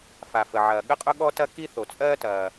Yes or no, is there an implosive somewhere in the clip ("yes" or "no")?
yes